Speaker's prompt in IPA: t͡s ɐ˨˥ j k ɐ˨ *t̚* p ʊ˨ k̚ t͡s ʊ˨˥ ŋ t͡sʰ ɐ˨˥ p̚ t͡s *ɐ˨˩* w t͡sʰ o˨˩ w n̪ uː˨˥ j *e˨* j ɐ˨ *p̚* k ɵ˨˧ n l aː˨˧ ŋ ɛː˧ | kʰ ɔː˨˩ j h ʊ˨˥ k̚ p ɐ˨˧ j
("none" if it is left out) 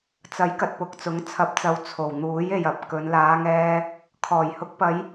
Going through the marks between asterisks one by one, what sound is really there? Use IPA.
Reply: t̚, ɐ˨˧, e˨, p̚

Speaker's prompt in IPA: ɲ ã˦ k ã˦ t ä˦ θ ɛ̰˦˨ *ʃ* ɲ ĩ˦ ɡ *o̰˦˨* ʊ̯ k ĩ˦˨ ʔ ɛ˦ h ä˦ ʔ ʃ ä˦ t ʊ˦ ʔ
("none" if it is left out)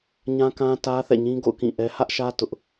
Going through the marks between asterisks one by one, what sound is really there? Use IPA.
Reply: none, o̰˦˨

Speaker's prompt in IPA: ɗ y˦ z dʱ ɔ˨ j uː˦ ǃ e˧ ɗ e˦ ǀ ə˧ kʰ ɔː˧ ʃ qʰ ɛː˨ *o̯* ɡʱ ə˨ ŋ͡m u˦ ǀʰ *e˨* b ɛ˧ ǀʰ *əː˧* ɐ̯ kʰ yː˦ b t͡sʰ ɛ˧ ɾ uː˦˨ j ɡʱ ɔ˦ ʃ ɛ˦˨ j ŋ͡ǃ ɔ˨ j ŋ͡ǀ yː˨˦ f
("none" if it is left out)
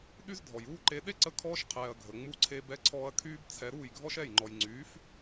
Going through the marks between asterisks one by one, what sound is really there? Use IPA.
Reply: ɐ̯, e˦, ɔː˧

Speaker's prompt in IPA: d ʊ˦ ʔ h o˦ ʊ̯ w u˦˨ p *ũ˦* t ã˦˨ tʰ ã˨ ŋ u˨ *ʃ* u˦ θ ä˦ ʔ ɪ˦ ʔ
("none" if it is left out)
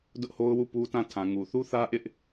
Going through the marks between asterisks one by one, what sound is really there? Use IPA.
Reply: u˦, θ

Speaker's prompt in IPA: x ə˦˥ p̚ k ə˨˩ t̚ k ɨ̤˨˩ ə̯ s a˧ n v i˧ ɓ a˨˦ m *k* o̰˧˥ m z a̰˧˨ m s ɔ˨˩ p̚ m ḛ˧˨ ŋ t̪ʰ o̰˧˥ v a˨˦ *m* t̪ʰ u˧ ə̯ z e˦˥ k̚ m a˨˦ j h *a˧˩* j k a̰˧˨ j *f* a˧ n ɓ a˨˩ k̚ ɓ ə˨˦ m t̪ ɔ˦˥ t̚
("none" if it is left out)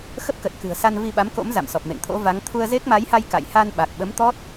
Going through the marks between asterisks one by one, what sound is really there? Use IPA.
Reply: k, ŋ, a˧, h

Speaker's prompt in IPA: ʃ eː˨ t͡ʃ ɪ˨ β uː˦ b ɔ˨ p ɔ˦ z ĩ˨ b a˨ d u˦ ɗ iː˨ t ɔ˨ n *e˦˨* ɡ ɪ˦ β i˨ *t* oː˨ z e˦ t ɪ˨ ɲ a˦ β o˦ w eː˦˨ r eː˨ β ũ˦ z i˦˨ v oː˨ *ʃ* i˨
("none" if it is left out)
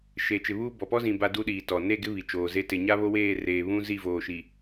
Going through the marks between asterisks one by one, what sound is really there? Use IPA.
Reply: e˦˨, t͡ʃ, ʃ

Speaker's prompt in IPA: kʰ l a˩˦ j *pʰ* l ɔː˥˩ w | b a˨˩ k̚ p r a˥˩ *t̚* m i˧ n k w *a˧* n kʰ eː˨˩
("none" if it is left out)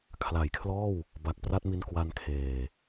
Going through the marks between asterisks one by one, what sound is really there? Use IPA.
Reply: kʰ, t̚, a˧

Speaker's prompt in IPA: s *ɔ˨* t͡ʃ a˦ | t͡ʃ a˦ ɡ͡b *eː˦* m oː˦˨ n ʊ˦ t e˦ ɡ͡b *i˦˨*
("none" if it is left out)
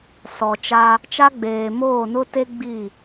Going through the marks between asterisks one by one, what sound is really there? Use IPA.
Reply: ɔ˨, eː˨, i˦˨

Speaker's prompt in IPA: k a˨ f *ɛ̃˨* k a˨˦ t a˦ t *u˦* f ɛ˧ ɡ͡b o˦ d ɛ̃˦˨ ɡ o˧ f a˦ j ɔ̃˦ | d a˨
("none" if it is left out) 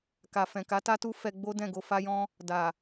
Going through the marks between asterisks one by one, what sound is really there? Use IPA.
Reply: ɛ̃˨, u˦

